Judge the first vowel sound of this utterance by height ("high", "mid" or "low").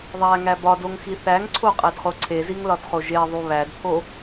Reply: low